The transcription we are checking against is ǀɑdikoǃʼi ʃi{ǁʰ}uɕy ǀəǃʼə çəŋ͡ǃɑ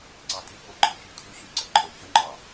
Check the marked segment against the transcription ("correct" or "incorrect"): incorrect